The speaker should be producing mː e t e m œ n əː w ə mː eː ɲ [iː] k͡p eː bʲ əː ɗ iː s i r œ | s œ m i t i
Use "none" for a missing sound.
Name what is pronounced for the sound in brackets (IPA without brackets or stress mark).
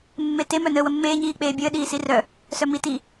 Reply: iː